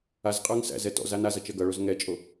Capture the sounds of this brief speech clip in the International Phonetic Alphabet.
azqʼə˞ŋ sæ̰zɛ tɔ̰z anazʌ t͡ʃɜɡʌɭoz ŋɛt͡ʃʼo

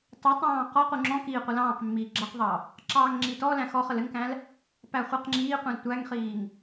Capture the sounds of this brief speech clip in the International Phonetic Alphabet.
tˤutˤɑ̃ː qɔqu ŋ͡ǁɔ̃kiː qʷɐlɑ̃ːqmːiː ɡ͡ǁɐqðˤɑ | ǁɑːŋŋ͡ǁitɔlæ̃ xɔχəl ɘŋkæ̃l | pæχʷiqŋ͡ǁiːqʷĩl tʷæŋχiːŋ

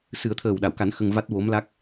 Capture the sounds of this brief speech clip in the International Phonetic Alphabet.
sɨ˨˩˦ə̯t̪ʰəː˨˩wɗa˨˩˨wka˨˩˦n xə˧ŋva˦˥t̚wo˧˥mla˦˥k̚

